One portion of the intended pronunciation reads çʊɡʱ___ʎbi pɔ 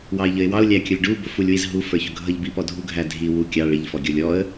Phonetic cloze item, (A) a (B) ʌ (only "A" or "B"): B